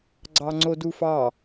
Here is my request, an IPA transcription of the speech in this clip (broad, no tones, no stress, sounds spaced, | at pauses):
ɡ͡ǀ ɑ ŋ͡ǀ o d u f ɑ